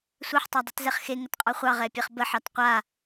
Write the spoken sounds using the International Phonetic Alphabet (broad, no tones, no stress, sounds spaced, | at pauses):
sʷ ɛ ħ tˤ ɑ dˤ i t z ɛ χ x e ŋ ə t qʼ ɑ χʷ ɑ ʁ ɛ pʲ ɛ χ b ə ħ ɑ t qʷ a